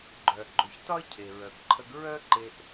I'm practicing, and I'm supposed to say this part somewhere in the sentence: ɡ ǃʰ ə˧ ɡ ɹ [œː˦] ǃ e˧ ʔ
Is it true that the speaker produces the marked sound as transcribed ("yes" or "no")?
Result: no